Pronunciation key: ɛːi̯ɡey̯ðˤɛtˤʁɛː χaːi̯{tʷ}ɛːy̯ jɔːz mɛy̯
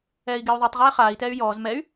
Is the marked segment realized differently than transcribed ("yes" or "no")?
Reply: yes